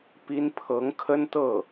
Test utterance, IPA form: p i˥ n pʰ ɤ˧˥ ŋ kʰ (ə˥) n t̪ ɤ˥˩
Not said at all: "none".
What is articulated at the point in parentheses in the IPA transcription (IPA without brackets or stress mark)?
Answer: ə˥